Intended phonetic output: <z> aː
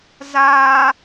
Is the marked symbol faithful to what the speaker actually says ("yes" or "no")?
yes